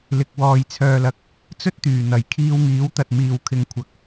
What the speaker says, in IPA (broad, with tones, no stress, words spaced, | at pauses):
lɪ˨k̚ wɔː˨jt͡sʰœː˨lɐ˨k̚ | t͡sɵ˥t̚t̪yː˨˩n̪ɐ˨˩j kʰiː˧wŋiː˨˥wt̪ɐ˨t̚ miː˨wkʰɪ˨˧ŋkʷʰɐ˨˥k̚